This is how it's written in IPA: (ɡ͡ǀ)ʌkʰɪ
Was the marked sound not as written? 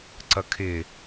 yes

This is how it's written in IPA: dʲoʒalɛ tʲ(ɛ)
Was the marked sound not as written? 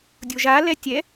no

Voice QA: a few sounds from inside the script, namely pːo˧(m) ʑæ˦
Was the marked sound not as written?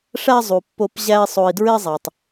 yes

